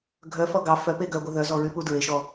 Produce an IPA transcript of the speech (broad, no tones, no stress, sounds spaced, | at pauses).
ɡʱ œ f ɔ ɡ ɑ f œ p e ɡ œ ɡʷ œ ð œ z ɔ ɹ y p u d ɹ e ʃ ɔ